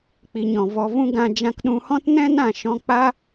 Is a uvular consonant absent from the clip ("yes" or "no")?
yes